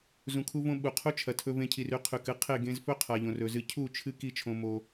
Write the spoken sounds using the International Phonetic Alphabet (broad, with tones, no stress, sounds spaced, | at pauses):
z ũ˨ kʰ u˧ v õ˧ ɓ u˨ qʰ u˦ t͡ʃʰ ɐ˨ tʰ ɵ˧ v ẽ˧ cʰ i˨ r ʉ˦ qʰ ʉ˨ k ɨ˦ qʰ e˦˨ ɡ ẽ˧ z f ɵ˦ qʰ a˨ ʎ õ˨ r ɵ˨ z ɨ˧ cʰ u˦˨ t͡ʃʰ ɨ˦ k i˦ t͡ʃʰ õ˧ m o˧